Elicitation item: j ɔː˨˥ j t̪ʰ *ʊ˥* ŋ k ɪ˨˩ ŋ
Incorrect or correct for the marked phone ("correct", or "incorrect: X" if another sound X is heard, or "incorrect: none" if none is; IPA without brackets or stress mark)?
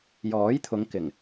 incorrect: ʊ˨˧